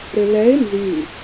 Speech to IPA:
ɾ ɪ l ɛ ɪ̯ n z y

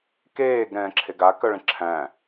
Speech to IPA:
k eː ɡ ɾ ɛ̃ː ǁʰ e ɡ a k œ ɭ ə̃ ǁʰ æ̃ː

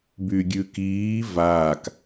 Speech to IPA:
b y ɡʲ ʉ k iː v aː k

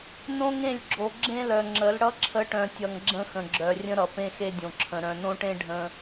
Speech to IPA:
n õ˦ ŋ ẽ˦˨ lʲ ɡ͡ǁ o˨ ɡ͡ǁ ẽ˦ l œ˨ ŋ͡ǁ ə˨˦ l ɽ ʌ˦ ǁʰ ə˨˦ ʈ œ̃˨ tʲ ʌ˨ ŋ ɡ͡ǁ ə̃˦ x ə̃˨ ɡ͡ǁ œ˨ rʲ ə̃˦ ɾ ʌ˨ p ẽ˦ x e˦ dʲ õ˨ ǁʰ ə̃˨ ɾ œ̃˨ n õ˦ ʈ ẽ˦ ɖʱ ə̃˦

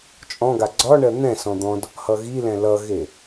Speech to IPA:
t͡ʃʼ ɔ̃ ɡ a ɡ͡ǀ ɒ ɳ ɜ n̪ ɛ̃ s ɔ̃ d̪ ɔ̃ d | h ʌ ɣ i l ɛ̃ l ʌ ɣ e

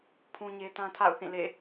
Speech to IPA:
pʰ ũ˦ ɲ e˦ t ã˦ tʰ a̰˦˨ ʊ̯ θ ĩ˦˨ l ḛ˦˨

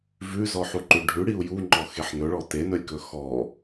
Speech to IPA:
v ʉ z ɔ ħ u ǃ ʉ ɖʱ ʉ ɽ i u̯ j u ŋ͡ǃ ɔ x e ħ n ɵ ɭ ɔ t e n ɵ lʲ k ɵ x ɔ

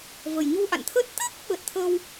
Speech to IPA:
v ə˨˩ j ɲ u˧ ʔ a̰˧˨ n t̪ʰ əː˦˥ t̚ t̪ əː˦˥ k̚ ɓ ə˨˩ t̚ t̪ʰ ə˧ w

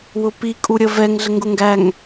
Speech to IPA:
w ʊ p i kʼ u ɾʲ ə v ɛ ŋ ɮ ə ŋ ɡ ʊ ŋ ɡ æ ŋ

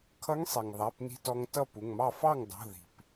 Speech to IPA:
kʰ ʌ˧˥ ŋ sˤ i˩ ŋ ðˤ æ˩˧˩ p n i̤˧ t ɔ˧ ŋ t ʌ˥˩ p u˩˧˩ ŋ m ɑ˥˩ f ɑ˥˩ ŋ dˤ ṳ˩˧˩ ð i̤˩ p

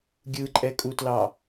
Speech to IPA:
ɡʲ ɯ ǃʼ ɛ kʼ u t l ɑ

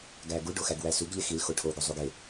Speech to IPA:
ɡ æ ɡ u ɖ o x æ ɡ w æ s u ɡ ʎ e x i l x o ʈʰ o ɡ o zˤ u ɡ e

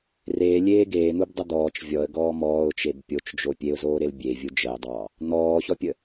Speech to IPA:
r e lʲ eː ɡ eː n̪ u b dˤ ə d̪ ɔː t͡ʃ vʲ ɔ ə̯ ɡ ɔː m ɔː ʊ̯ t͡ʃ e b pʲ o t͡ʃ d͡ʒ o pʲ e ʊ̯ z oː ɾ e l bʲ e vʲ u d͡ʒ ə ɪ̯ dˤ ɑː | n̪ ɔː ç ɔ pʲ ə

